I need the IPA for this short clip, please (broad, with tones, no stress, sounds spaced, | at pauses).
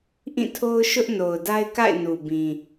ʔ ĩ˦˨ tʰ o˦ ʊ̯ ʃ ʊ˦ ʔ n o˨ ʊ̯ d a˦ ɪ̯ k a̰˦˨ ɪ̯ n u˨ b ĩ˨